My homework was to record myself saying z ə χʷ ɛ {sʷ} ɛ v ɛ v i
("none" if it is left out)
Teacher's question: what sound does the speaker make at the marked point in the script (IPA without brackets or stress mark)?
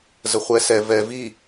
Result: s